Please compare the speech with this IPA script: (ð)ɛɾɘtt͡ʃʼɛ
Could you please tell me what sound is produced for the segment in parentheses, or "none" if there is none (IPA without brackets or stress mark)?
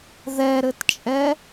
ð